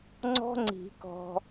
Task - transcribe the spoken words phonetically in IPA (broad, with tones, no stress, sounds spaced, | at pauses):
ŋ͡ǀ ɔ̤˦ ŋ͡ǀ i̤˨˩˦ k ɔ̤˨